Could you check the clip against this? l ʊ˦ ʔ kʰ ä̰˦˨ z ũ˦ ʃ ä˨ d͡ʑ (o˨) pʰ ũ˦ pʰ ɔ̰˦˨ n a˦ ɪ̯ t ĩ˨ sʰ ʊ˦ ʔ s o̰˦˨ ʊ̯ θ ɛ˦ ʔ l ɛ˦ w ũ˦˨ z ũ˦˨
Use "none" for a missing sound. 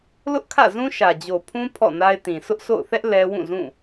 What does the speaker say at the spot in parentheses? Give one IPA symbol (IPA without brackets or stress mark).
o˨